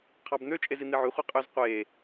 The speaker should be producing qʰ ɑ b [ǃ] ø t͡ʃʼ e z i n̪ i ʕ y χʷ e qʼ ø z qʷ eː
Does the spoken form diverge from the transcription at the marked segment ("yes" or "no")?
yes